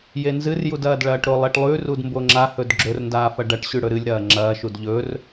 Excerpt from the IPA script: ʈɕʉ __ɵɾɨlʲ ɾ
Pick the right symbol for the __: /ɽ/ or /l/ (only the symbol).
ɽ